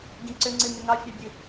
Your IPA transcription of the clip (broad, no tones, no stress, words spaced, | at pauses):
ɡĩǀʏŋ͡ǀɨ nʏŋɑfʲɑbʲɨ